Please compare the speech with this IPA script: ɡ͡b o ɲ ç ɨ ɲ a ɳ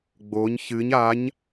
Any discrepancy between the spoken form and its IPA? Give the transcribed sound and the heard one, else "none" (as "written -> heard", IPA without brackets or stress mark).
ɳ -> ɲ